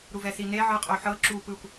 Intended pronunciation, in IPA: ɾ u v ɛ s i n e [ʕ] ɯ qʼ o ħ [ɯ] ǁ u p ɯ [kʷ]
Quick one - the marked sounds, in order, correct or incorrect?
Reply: correct, incorrect, correct

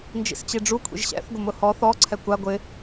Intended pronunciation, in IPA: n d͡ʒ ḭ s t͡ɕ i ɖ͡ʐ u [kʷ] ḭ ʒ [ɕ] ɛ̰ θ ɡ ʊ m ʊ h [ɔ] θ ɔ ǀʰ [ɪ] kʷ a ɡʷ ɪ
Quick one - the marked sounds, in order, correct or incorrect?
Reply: incorrect, correct, correct, incorrect

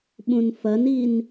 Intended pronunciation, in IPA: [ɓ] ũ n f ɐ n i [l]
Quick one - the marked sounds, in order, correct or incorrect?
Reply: correct, incorrect

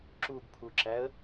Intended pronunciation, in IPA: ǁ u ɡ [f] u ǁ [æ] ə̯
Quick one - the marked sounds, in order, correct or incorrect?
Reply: incorrect, correct

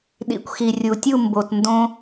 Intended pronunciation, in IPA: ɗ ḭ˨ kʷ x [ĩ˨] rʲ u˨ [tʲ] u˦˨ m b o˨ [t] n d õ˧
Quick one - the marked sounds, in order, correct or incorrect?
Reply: incorrect, correct, correct

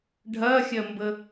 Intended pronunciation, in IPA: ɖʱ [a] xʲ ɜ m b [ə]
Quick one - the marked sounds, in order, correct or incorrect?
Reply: incorrect, correct

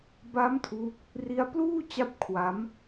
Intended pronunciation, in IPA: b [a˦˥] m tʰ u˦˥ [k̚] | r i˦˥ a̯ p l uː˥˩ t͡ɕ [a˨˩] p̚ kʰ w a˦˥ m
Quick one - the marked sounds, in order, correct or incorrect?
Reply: correct, correct, incorrect

